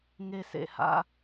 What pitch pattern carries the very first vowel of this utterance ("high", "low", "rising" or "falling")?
high